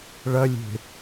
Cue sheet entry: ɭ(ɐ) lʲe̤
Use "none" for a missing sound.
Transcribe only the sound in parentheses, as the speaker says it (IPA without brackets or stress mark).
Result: ɐ